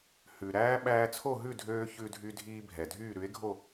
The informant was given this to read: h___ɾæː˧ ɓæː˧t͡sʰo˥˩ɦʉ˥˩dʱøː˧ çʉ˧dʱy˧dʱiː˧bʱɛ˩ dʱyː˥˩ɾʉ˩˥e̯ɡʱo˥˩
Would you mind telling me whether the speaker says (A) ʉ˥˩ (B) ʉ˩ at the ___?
B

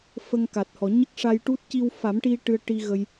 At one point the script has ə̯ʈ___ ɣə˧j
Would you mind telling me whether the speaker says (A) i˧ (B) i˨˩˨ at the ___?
A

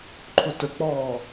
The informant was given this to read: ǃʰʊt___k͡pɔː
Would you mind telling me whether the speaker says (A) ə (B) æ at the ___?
A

